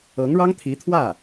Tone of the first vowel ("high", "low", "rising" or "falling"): rising